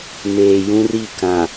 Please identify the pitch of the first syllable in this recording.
low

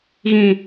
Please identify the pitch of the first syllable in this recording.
falling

